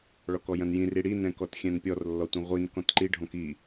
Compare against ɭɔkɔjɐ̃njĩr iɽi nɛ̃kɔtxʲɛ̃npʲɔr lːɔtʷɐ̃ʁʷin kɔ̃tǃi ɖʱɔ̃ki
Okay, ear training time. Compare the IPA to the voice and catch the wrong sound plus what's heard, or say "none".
none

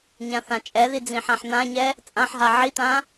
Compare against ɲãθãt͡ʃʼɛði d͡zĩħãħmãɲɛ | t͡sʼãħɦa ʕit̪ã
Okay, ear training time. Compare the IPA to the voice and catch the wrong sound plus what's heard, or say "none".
m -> n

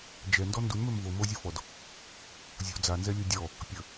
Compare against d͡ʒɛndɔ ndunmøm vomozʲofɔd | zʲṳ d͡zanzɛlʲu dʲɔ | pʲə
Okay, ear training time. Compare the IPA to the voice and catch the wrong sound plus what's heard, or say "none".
none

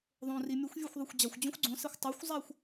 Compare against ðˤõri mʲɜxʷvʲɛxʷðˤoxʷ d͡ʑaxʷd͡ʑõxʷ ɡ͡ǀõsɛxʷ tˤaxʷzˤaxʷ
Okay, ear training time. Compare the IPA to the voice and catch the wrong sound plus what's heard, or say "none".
ɜ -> ɛ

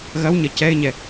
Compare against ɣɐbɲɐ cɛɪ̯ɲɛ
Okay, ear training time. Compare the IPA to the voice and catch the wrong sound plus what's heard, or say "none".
b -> w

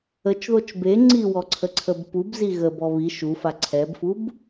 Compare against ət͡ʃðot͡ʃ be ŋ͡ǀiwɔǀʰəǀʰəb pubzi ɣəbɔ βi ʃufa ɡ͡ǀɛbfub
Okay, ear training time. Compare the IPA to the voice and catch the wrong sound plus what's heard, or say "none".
ɡ͡ǀ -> ǀʰ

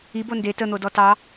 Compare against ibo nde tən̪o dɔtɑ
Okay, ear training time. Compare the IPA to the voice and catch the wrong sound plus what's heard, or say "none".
none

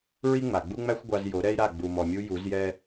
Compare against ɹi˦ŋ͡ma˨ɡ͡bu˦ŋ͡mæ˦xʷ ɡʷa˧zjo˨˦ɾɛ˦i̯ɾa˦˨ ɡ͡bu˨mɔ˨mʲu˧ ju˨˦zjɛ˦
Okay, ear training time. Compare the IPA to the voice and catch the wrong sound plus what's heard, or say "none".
none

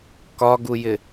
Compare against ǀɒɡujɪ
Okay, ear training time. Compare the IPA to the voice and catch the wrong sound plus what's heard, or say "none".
ǀ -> k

